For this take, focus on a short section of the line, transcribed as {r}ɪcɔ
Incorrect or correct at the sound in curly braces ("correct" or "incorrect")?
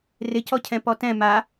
correct